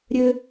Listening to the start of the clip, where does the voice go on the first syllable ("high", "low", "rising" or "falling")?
high